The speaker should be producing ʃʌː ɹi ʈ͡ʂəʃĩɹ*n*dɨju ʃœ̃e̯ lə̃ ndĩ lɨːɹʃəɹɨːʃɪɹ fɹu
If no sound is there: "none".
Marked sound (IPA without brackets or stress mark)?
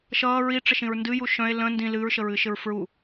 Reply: n